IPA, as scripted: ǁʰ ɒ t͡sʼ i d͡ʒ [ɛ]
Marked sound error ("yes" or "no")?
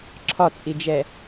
no